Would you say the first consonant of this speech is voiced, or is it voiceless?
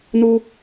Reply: voiced